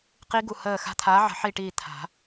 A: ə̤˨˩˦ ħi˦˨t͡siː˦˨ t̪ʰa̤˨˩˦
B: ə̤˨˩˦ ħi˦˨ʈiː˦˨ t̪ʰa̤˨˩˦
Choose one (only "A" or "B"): B